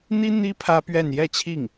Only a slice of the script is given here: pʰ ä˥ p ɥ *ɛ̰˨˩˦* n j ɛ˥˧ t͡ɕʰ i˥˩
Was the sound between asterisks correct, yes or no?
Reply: no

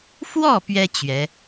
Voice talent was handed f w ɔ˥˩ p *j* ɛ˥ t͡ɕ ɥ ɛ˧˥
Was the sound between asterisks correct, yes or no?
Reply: no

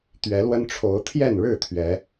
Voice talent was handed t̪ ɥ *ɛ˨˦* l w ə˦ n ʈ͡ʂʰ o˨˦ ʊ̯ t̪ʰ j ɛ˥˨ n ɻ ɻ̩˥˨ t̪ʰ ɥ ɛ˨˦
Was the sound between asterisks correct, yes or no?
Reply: yes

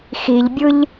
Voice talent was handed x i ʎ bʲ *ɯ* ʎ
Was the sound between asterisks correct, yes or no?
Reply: yes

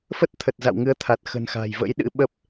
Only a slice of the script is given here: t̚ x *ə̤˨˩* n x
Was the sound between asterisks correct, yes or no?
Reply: yes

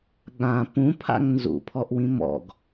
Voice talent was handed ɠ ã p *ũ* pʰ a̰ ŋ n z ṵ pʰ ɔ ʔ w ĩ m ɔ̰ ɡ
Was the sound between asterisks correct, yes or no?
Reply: yes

